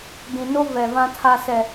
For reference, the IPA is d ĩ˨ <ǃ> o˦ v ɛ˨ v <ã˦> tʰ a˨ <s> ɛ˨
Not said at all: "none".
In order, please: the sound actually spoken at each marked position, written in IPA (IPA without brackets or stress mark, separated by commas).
n, ã˨, s